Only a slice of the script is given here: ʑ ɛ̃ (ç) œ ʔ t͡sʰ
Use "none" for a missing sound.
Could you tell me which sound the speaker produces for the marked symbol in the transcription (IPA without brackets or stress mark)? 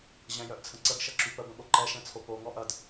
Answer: j